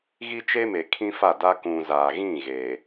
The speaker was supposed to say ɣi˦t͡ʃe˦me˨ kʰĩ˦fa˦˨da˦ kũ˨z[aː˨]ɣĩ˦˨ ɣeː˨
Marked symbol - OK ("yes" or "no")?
yes